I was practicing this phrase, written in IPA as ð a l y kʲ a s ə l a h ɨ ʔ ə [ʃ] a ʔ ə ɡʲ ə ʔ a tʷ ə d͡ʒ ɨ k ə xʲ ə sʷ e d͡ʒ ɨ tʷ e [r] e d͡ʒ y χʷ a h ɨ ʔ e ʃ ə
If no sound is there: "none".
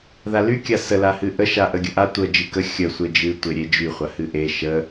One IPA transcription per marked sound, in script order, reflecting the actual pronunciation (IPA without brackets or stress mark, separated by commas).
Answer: ʃ, ɾʲ